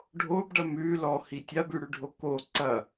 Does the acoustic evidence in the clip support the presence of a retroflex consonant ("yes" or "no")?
yes